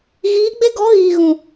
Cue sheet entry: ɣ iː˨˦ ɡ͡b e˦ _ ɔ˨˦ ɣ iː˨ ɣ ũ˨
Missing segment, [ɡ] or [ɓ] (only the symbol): ɡ